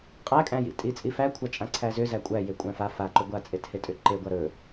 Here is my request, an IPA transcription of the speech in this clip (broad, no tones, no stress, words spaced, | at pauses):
qʼækʼæ̃jḭ tʼit͡sʼifækʷʰa t͡ʃʼãǀʰæzʏ zækʷʼæje kʷʼæ̃fa faǃɵ ɡʷat͡sʼethetʼʏ ǃeɡʷa ɾɵ